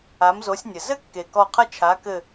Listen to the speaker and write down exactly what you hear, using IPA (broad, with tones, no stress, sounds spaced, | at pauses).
a˨˥ m z o˨˥ sʲ nʲ ɘ˨˩ z ɘ˥ kː e˨˩ k ɔ˦˨ qʰ ɐ˥ t͡ʃʰ a˨˥ k ɘ˦˨